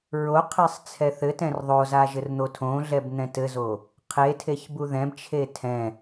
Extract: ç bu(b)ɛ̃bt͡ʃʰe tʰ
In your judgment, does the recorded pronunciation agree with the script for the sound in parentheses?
no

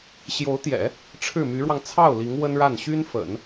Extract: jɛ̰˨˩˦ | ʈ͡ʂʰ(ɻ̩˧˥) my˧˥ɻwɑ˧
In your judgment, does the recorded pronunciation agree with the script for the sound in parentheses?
no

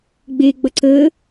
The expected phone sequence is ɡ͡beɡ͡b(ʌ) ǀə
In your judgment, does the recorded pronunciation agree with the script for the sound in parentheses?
yes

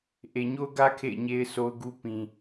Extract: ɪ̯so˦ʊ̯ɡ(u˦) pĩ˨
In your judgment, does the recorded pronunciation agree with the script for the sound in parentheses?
yes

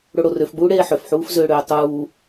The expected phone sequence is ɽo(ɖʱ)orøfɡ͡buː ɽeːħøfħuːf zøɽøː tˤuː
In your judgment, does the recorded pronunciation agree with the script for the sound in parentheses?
no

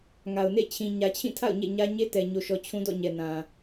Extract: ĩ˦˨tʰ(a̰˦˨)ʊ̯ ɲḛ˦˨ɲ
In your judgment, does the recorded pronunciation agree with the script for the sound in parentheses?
yes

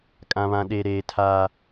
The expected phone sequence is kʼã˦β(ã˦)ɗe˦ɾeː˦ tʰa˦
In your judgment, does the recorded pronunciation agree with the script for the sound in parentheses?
yes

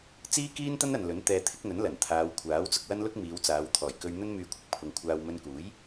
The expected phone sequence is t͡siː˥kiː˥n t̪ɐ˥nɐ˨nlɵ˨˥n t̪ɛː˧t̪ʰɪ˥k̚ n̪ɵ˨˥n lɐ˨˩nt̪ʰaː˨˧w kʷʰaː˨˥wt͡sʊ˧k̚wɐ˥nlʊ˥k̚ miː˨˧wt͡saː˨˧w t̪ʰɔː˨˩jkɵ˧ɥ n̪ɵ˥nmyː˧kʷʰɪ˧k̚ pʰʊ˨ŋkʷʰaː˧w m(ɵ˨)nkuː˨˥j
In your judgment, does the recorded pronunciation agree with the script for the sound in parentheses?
no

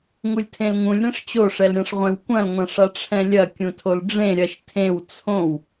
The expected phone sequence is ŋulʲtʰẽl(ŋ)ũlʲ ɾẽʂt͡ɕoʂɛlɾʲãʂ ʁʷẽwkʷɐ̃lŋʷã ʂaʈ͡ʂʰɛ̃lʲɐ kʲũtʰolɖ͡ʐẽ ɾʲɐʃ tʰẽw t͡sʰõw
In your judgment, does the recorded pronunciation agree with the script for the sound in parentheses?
yes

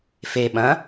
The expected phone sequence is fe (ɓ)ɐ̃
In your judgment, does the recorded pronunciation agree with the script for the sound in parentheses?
yes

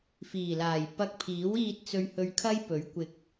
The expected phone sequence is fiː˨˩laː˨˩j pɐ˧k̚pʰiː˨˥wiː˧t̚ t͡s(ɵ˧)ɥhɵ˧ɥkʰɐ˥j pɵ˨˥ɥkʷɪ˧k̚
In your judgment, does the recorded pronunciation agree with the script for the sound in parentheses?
yes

